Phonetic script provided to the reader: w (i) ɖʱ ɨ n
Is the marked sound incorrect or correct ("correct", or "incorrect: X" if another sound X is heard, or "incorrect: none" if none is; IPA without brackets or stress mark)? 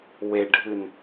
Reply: incorrect: e